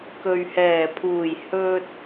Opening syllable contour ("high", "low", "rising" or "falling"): low